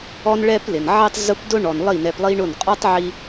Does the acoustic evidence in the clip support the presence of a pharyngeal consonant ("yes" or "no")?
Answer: yes